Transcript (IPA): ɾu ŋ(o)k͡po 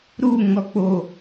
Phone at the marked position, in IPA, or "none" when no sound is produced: ɔ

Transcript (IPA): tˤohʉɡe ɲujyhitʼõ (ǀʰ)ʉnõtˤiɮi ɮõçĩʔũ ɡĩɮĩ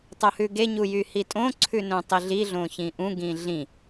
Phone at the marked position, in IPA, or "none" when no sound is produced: ǀʰ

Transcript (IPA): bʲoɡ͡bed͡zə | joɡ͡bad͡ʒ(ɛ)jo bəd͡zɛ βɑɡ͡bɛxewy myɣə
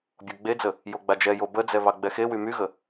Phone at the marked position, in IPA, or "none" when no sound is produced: ɛ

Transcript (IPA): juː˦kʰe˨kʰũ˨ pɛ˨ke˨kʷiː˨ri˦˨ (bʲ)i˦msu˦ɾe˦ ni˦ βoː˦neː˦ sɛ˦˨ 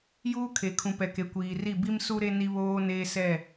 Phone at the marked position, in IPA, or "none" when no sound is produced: b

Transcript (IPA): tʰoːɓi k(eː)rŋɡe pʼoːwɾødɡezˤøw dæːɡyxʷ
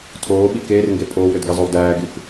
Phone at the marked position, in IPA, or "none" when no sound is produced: eː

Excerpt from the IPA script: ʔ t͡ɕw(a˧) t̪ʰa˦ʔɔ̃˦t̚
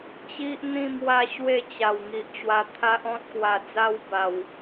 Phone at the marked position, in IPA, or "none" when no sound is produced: a˧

